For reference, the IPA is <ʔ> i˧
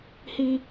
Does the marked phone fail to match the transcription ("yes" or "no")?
yes